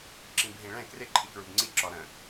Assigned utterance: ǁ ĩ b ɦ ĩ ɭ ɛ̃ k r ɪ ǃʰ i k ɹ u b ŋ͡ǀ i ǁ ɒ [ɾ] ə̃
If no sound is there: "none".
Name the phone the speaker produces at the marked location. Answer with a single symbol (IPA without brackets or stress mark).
ɾ